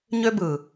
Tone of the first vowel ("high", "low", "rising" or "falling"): high